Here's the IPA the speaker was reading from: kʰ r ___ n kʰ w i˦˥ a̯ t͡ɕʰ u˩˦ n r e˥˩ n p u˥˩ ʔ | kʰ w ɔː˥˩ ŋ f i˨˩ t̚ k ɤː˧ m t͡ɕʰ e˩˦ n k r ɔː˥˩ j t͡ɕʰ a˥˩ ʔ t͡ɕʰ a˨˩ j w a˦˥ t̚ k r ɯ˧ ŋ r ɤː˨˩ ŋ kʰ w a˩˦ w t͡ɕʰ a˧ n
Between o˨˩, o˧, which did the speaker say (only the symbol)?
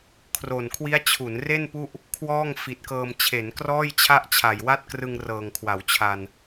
o˨˩